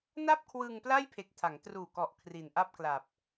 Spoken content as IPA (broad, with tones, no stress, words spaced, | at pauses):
na˥˩p̚ kʰwɯ˧ŋpla˥˩j pʰe˨˩k̚tʰa˩˦ŋtruː˨˩kɔ˨˩ʔ kʰri˨˩nʔa˥˩p̚kla˨˩p̚